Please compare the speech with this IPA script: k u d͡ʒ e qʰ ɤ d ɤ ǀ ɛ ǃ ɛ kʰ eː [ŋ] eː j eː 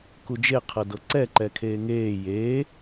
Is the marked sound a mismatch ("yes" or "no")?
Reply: no